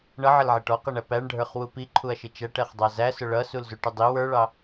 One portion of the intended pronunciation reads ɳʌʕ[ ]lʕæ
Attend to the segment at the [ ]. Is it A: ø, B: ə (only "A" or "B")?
B